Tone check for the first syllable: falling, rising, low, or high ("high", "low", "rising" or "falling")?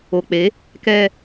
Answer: low